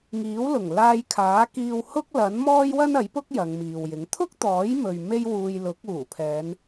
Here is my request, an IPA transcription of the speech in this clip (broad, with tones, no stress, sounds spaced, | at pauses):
ŋ iː˨˥ w l ʊ˨˩ ŋ l aː˧ j kʰ aː˨˥ k iː˧ w h ʊ˥ k̚ l ɐ˨˥ n m ɔː˥ j w ɐ˥ n ɐ˨˥ j p ʊ˥ k̚ j ɐ˨˧ ŋ m iː˨ w j ɪ˨˥ ŋ t̪ʰ ʊ˥ k̚ t̪ ɔː˨˥ j m ɵ˨ ɥ m e˥ j w uː˧ j l ʊ˨˥ k̚ uː˨˩ pʰ ɛː˨˧ n